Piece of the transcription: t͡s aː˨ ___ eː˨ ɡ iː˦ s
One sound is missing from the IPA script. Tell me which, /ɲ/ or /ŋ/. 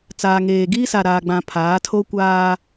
ŋ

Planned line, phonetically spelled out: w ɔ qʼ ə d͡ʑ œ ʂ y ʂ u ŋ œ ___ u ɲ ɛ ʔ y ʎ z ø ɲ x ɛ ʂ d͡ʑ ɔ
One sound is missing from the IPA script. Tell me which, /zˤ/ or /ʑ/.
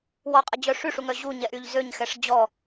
ʑ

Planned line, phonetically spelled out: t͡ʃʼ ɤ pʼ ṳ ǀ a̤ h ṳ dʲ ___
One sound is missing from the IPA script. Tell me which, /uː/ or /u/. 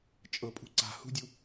u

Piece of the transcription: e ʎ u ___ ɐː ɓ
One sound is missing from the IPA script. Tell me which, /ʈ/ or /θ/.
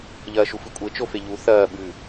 θ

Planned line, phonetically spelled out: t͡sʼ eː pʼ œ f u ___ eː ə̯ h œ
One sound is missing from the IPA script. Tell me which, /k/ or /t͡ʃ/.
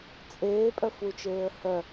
t͡ʃ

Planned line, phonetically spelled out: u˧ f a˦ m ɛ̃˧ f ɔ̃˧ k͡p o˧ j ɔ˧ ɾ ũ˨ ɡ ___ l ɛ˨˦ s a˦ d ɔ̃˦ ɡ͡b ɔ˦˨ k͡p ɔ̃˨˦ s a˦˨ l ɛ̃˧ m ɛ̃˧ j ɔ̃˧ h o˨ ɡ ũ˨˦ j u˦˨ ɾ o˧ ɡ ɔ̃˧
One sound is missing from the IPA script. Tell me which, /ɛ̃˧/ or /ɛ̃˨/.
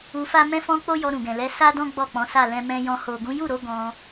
ɛ̃˨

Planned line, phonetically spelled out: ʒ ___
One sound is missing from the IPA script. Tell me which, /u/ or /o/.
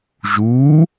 u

